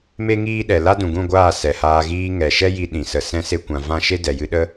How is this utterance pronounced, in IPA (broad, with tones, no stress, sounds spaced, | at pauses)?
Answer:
m e˦ ŋ iː˦ ɗ ɛ˨ l a˦ d ũ˨ ɡ ũ˦˨ ɡʷ aː˦˨ s ɛ˨ h aː˧ ɣ iː˧ ŋ ɛ˨ ʃ ɛ˦ j i˧ ɗ ĩ˨ s ə˧ s ɛ̃˦ s e˦ kʷ ã˧ v ã˦ ʃ e˦ d ɛ˨ j ɨ˧ ɗ ə˦